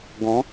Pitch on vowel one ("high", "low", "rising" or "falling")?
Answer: rising